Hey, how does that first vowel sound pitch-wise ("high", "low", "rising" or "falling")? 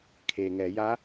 low